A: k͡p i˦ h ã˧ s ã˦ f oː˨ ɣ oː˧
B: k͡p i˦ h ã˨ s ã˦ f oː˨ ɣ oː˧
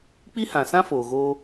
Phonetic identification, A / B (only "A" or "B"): B